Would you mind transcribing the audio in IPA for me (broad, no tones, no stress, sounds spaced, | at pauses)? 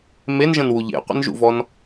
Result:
m e n ʒ ə̃ n w u ʎ ḛ qʷ ə̰ n ʒ ṵ v ɔ n